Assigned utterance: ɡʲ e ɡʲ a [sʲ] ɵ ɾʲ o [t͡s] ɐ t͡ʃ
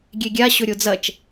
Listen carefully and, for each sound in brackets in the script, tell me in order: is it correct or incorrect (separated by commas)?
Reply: incorrect, incorrect